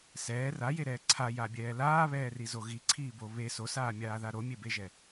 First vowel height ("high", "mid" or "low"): mid